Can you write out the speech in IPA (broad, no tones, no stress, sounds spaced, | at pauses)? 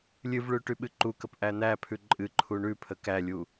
lʲ ɨ v ɭ ʉ ʈ y ɓ ɨ ǃ u k ə p ʔ æ n̪ æ pʰ ʉ ǃʼ ɨ ǃʰ u ɳ ʉ pʰ ə k æ lʲ u